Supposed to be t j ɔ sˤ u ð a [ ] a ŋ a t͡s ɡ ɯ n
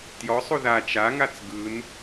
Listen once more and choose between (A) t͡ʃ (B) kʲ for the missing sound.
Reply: A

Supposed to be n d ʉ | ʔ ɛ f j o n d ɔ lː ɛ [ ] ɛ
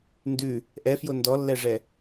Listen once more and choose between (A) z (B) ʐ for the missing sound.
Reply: B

